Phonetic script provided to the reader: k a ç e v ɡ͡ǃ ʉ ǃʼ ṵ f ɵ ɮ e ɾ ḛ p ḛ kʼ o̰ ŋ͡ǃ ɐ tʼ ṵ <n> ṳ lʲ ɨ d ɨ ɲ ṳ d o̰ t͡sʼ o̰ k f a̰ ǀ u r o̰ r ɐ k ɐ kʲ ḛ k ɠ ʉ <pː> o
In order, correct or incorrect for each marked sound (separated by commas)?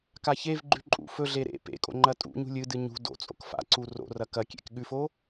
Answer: incorrect, incorrect